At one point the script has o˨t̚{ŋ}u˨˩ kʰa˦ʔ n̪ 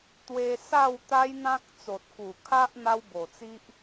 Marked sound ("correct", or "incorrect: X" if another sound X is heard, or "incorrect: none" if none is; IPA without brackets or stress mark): incorrect: k